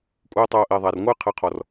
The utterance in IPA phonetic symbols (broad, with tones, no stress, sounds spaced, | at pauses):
kʷʼ ɘː˦ tˤ oː˧ ʔ e˨ ðˤ a˨ r ŋʷ ɨː˦ qʰ ɘ˨˦ qʰ ɔ˨ r